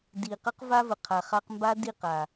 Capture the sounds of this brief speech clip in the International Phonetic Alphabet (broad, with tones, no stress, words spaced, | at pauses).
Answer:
di˨ qʌ˦qva˦və˨ qʰa˨χa˧qmba˦ di˦˨q a˨